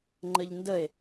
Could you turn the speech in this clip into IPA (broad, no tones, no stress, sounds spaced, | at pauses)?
ŋ͡ǃ ə ʎ n d ə e̯